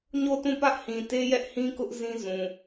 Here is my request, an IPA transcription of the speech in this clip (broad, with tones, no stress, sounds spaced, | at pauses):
ɲ o˦˨ t ũ˦˨ p ä˦ ʔ h ĩ˨ t e˦ j ɛ˦ ʔ h ĩ˦ k ʊ˦ ʔ z ĩ˦ z ũ˨